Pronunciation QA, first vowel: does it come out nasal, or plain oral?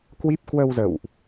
oral